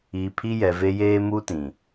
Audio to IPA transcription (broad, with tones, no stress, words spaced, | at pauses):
iː˨pʰi˦jɛ˨ve˦ jeː˦ muː˦tĩ˨